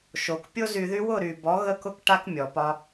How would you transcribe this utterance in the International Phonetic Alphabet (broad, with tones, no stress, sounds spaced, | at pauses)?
ʃ o˨ k pʲ o˦ z y˧ ð y˦ w ʊ˦˨ ɾ y˨ b ɔ˨˦ ɣ ə˦ k ʊ˦ k ʈ a˦ k mʲ ɔ˨ p ɒ˧